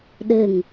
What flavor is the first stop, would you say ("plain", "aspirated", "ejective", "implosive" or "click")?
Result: implosive